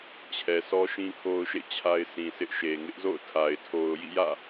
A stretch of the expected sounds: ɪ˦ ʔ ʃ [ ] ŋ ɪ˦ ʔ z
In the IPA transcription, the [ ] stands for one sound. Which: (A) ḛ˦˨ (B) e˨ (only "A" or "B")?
B